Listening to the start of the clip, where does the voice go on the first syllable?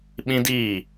high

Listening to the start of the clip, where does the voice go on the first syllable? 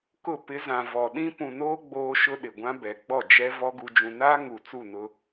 falling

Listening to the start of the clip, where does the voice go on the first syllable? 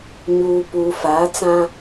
low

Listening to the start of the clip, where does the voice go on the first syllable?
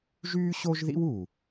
high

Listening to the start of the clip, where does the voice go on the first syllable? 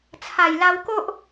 low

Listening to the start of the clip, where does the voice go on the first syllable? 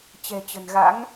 low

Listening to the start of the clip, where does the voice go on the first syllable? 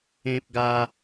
high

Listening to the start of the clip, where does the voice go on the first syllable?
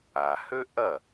low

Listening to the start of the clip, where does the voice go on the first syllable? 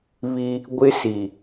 high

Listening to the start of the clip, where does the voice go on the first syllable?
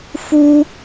high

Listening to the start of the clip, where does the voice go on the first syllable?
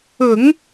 low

